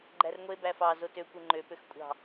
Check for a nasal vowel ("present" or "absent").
absent